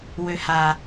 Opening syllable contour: high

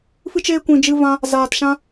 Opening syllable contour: high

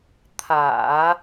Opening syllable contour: low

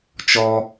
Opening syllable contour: high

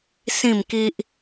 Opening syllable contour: falling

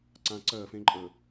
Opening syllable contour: low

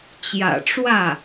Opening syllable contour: low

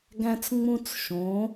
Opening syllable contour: high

